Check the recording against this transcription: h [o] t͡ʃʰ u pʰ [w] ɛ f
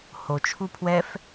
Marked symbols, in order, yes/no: yes, yes

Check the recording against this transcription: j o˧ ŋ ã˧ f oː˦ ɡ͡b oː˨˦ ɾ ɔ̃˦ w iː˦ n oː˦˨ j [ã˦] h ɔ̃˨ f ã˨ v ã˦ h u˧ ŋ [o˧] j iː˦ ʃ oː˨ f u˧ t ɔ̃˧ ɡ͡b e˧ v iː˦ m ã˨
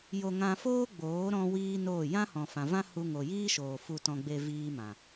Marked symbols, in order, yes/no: yes, no

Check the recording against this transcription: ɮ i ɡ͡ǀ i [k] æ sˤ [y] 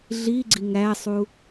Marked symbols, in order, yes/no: no, no

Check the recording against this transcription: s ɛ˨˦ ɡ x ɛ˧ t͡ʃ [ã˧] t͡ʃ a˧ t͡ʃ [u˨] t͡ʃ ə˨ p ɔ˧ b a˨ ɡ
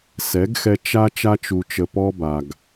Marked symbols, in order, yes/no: no, yes

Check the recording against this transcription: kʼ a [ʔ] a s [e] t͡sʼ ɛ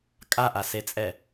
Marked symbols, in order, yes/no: yes, yes

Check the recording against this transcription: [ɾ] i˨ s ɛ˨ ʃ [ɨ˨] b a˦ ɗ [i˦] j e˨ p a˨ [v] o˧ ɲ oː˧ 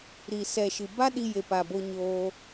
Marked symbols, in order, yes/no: yes, yes, no, no

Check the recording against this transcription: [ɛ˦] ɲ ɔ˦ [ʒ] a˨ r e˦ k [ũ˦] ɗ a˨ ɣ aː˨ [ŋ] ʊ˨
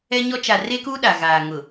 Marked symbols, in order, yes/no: yes, no, no, yes

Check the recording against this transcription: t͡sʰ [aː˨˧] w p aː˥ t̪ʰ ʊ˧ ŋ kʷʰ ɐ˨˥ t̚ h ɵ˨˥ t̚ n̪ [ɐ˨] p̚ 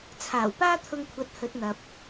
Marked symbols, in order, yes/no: no, yes

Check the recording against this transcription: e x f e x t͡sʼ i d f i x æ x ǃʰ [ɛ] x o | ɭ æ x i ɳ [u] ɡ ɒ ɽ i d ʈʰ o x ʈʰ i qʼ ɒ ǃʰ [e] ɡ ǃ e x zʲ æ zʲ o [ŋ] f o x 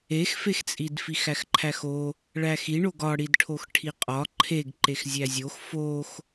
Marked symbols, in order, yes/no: no, no, yes, no

